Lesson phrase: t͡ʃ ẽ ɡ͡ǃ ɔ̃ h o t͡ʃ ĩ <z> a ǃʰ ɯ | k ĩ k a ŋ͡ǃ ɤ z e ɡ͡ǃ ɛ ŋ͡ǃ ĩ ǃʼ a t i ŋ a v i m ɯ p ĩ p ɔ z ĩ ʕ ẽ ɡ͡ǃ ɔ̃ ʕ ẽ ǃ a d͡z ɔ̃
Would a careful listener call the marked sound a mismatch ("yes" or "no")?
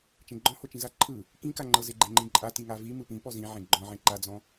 no